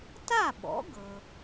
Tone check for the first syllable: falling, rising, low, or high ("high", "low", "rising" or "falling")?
falling